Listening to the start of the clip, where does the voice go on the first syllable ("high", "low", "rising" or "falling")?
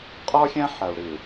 high